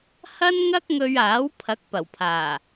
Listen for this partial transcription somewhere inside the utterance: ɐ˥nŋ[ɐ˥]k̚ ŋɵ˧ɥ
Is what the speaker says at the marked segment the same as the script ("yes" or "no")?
yes